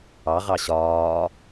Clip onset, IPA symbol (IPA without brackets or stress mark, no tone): ɑ